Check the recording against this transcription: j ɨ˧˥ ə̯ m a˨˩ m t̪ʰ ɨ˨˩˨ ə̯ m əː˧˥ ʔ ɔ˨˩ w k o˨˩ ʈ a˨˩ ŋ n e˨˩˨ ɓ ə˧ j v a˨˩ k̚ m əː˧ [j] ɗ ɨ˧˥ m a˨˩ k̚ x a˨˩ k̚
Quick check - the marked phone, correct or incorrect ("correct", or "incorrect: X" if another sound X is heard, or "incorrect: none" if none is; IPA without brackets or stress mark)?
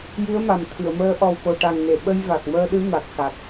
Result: incorrect: none